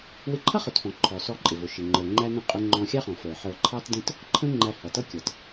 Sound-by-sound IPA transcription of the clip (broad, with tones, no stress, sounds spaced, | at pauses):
w ɪ˧ ǃʰ ʌ˥ χ ʊ˩ t f ɔ̃˩ ǃʰ ɔ˩ s ɔ˧ ǃʼ ɪ˩ v ʊ˩ ʃ ɪ˩ ŋ͡ǃ ə˞˩ ŋ͡ǃ æ˧ n ə̃˧ qʼ ʊ˧ ŋ͡ǃ ɔ̃˧ xʲ ɑ˥ χ ɔ̃˩ f ə˞˩ ħ ə˞˧ ǃʰ ɑ˥ t d ə̃˥ t | ǃʰ ə̃˧ ŋ͡ǃ æ˧ h ʌ˩ t ʌ˥ kʲ ʌ˩ t